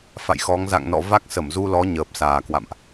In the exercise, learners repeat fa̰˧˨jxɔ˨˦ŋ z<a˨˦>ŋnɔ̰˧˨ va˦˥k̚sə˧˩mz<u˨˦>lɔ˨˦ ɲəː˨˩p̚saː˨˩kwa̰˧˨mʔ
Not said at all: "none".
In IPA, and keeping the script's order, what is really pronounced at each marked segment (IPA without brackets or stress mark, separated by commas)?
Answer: a̰˧˨, u˧